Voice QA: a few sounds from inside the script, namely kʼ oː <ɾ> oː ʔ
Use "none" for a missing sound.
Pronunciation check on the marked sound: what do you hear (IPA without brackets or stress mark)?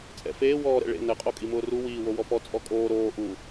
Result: ɾ